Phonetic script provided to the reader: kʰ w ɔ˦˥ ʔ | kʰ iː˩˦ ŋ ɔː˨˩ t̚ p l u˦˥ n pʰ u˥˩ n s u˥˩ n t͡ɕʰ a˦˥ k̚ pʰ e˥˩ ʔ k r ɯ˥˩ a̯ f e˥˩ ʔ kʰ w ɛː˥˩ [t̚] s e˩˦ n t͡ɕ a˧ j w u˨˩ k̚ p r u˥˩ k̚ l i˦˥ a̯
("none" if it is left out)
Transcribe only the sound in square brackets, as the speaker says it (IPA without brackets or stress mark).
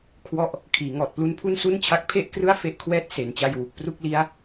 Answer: t̚